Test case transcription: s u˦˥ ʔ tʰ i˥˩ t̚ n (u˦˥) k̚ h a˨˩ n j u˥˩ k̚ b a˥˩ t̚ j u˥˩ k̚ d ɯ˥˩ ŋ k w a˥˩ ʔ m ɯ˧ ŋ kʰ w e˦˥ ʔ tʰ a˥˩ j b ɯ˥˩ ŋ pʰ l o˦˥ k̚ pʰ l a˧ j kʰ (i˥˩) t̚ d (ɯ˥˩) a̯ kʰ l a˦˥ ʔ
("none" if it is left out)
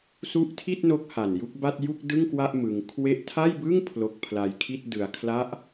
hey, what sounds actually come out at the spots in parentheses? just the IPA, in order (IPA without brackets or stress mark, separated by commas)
o˦˥, i˥˩, ɯ˧